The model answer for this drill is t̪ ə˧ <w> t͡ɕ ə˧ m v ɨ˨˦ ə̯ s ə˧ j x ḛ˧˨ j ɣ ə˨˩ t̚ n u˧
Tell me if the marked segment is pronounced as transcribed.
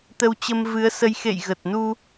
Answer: yes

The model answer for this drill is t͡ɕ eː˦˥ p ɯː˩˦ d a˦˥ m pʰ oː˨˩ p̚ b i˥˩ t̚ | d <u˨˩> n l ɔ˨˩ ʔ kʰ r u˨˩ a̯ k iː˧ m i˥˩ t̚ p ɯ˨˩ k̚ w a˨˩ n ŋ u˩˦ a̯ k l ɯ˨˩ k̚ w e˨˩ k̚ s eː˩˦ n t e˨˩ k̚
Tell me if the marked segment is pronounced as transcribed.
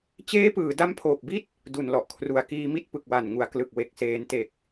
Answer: yes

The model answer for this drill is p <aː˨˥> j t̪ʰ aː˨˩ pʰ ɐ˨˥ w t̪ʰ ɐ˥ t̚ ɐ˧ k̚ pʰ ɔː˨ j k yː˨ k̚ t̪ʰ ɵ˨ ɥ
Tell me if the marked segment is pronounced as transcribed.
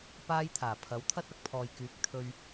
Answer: no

